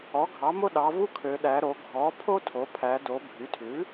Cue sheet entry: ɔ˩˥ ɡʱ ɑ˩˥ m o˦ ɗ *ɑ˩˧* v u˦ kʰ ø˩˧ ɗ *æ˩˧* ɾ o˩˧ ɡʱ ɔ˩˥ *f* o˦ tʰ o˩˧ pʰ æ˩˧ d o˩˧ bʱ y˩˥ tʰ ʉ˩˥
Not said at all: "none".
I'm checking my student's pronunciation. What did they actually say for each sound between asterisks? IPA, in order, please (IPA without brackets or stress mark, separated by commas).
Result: ɑ˩˧, æ˩˧, pʰ